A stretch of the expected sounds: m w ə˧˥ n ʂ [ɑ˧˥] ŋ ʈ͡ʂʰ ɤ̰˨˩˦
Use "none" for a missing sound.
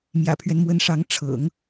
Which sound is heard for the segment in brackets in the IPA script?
ɑ˧˥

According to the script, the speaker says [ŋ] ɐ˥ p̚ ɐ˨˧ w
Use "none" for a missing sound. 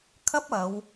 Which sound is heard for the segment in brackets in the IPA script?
kʰ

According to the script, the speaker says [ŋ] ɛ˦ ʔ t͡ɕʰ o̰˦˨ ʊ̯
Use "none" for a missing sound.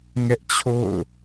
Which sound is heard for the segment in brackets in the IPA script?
ŋ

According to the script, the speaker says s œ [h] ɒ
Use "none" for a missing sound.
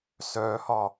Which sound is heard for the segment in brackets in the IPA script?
h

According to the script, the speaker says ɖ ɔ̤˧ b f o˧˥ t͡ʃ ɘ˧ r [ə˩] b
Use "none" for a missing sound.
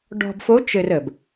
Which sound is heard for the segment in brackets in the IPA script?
ə˩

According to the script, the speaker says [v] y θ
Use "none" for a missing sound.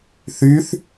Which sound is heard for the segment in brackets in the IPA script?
θ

